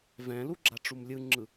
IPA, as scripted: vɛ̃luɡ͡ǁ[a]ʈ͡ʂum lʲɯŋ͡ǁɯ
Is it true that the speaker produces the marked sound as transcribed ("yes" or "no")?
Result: yes